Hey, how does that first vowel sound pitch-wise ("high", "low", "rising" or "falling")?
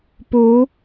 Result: rising